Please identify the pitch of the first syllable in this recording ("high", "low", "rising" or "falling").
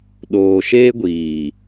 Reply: low